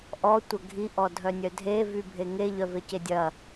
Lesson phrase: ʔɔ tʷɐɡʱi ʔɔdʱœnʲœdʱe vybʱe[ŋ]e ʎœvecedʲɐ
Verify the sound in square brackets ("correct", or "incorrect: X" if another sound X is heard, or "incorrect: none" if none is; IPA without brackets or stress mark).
correct